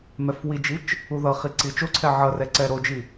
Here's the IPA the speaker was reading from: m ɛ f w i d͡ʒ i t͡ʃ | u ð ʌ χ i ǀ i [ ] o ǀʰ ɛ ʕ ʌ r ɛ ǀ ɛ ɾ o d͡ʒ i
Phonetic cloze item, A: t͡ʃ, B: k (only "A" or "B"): A